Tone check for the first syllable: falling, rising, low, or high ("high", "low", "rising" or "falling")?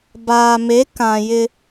low